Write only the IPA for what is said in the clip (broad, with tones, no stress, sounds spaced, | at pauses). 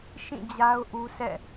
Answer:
ʃ ĩ˦˨ d͡ʑ a˦ ʊ̯ ʔ u˦ sʰ ɛ̰˦˨